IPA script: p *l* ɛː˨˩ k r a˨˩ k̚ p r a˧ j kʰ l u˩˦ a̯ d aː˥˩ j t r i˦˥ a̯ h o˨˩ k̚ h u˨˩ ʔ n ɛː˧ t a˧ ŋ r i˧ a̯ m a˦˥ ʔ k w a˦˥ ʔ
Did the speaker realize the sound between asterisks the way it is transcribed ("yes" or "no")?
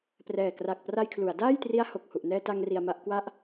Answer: no